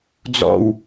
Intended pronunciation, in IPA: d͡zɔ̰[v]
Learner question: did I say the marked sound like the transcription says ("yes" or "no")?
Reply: no